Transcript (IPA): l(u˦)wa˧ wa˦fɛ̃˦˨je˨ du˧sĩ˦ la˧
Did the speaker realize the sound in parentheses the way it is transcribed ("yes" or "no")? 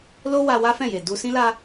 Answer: no